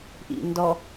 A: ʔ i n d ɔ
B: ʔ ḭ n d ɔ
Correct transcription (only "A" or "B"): B